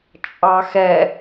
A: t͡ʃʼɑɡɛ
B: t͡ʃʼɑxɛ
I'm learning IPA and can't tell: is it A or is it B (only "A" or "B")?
B